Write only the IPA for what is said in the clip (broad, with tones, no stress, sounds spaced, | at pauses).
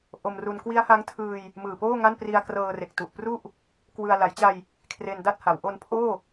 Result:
ʔ o˧ m r u˧ n k w i˦˥ a̯ h a˦˥ ŋ tʰ ɯː˧ j | m ɯː˨˩ p oː˥˩ ŋ a˥˩ n p r i˧ a̯ k r ɤː˧ r e˨˩ k̚ t u˨˩ ʔ p r u˥˩ ʔ | k w ɯ˧ a̯ l a˩˦ j t͡ɕ a˧ j | kʰ r e˧ n d a˥˩ t̚ h a˩˦ w ʔ o˧ n pʰ oː˥˩